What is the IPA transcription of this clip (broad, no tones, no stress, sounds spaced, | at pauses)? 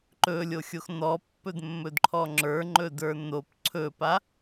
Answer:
ǃ ɵ lʲ o xʲ o x n ɔ pː ɵ d mː ɵ d ǃʰ ɔ ŋ͡ǁ ə˞ ŋ͡ǃ ɵ d ə˞ n o p ǀʰ ɵ p a